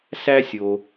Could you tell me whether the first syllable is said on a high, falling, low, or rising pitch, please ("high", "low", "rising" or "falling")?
high